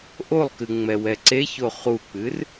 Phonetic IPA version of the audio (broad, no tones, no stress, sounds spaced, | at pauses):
ʔ o lˠ k ɨ ŋ͡m ɛ w ɛ ǀ e ç o χ u k͡p ɨ r